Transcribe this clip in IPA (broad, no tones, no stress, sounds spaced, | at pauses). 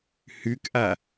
h ʉ k ʔ a